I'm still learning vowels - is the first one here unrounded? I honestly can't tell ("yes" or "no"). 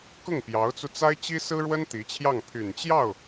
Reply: no